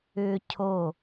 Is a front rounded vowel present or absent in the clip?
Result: present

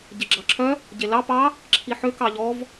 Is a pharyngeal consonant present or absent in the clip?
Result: present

